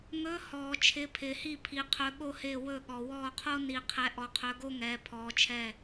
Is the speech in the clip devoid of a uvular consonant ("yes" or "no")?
no